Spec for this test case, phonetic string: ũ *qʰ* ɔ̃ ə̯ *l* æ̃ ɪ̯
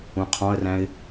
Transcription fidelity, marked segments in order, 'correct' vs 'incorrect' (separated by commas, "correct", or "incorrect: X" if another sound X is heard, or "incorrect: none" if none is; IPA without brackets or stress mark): correct, incorrect: r